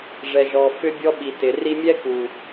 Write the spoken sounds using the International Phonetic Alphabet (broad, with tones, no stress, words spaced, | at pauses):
ʐɛ˨ʒɔ˨ fʏ˦bʲɔ˦ ɓi˨tɪ˨ ri˧mʲɛ˦ku˨